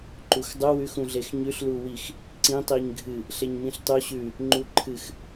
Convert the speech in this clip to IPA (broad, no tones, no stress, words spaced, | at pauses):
ǃuxdˤu wʉx ũɮexɲʉɬ luwix | ǀĩ tˤiɲɡʱɨ | ɬeɲmĩɬtˤu ɕʉ | ŋ͡ǃuǃʰɨx